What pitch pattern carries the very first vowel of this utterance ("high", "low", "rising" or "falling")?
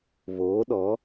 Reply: rising